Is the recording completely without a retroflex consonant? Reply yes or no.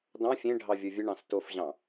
no